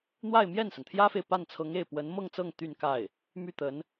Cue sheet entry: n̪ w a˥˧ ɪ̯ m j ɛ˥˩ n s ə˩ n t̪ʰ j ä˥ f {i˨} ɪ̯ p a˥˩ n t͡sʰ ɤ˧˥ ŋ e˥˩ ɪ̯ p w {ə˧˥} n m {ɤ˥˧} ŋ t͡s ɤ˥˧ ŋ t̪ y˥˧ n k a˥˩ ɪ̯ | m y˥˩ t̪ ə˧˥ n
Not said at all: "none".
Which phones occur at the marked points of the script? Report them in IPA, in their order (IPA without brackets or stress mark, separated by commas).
e˨, ə˧˥, ɤ˥˧